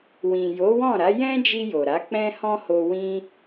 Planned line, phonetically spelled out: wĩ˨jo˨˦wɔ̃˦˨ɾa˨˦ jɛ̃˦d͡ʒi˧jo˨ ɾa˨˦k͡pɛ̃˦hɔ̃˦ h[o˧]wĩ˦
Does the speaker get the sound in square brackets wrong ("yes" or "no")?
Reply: no